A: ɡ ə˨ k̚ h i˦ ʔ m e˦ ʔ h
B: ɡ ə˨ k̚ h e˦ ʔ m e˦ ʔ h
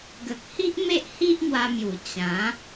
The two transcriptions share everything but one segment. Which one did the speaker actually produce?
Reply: A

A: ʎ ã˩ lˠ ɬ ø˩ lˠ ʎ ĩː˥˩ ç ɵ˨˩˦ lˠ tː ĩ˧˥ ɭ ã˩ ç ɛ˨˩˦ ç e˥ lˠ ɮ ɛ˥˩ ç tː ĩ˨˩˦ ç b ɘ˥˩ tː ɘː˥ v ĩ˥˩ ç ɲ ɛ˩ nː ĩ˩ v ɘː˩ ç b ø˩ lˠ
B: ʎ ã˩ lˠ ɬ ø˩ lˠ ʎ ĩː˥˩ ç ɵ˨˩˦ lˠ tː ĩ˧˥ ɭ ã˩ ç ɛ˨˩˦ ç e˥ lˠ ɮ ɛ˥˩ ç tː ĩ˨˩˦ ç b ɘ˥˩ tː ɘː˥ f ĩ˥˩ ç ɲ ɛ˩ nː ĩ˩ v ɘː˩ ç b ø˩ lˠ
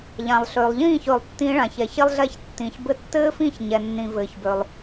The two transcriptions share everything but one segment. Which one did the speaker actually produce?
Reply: B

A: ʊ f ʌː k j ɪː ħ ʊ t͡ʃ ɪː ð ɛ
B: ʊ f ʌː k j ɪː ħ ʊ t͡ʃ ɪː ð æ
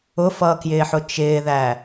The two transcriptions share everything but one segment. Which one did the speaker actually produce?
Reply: B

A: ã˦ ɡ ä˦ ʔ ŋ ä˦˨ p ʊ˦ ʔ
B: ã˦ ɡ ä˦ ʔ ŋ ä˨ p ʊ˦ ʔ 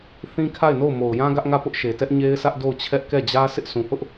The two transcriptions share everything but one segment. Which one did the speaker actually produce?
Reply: A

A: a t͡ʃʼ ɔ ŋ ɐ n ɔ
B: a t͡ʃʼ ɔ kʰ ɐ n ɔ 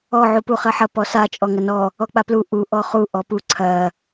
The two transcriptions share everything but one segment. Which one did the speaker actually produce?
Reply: A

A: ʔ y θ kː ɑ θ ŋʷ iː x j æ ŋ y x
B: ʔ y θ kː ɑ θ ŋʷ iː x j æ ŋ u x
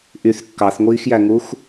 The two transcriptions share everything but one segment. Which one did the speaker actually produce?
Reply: B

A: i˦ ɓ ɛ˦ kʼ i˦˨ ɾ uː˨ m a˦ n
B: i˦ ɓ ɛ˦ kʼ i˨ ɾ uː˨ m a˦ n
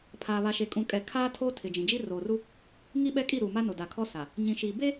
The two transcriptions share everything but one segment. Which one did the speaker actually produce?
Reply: A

